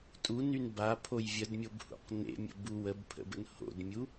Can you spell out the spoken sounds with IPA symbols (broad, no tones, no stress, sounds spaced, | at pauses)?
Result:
tʼ u n y n b a pʰ o j vʲ ə d mʲ o b h ṵ q n ḛ mʲ ə̰ b u w ə b pʰ ə̰ b ə̰ n h o̰ d mʲ u